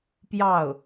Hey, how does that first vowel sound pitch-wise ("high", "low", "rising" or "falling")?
falling